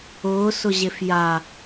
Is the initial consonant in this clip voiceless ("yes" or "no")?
yes